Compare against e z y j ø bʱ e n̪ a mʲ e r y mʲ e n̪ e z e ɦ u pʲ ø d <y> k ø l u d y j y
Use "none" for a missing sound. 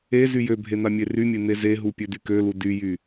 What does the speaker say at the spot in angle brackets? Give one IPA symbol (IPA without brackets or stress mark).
y